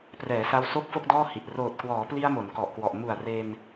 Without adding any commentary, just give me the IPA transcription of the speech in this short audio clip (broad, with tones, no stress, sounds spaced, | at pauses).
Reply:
p r ɛː˩˦ s a˧ w s o˥˩ k̚ f o˥˩ k̚ d ɔː˥˩ h i˨˩ ʔ r oː˨˩ t̚ k w ɔː˩˦ p l i˧ a̯ m o˩˦ n k ɔ˨˩ ʔ k w ɔ˨˩ ʔ m u˨˩ a̯ r e˧ n